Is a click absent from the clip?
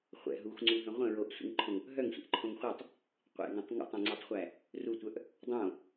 no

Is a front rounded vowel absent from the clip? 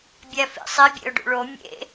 yes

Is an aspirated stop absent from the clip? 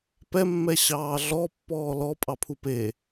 no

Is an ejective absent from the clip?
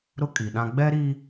no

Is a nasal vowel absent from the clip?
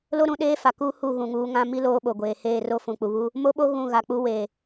no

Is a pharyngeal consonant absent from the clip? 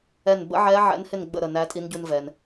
no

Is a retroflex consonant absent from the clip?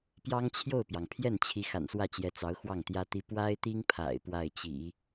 yes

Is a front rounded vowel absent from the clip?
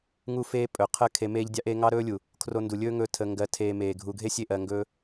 yes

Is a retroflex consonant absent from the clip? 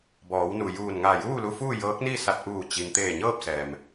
yes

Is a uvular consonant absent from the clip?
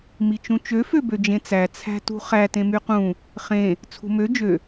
no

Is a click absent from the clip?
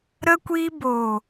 yes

